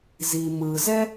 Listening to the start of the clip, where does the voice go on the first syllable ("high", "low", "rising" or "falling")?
low